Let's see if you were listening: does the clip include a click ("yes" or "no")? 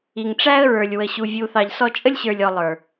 no